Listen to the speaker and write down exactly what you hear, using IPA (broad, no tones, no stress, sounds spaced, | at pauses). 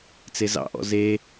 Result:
t͡s e z ɑ̰ ʔ ɔ̰ z e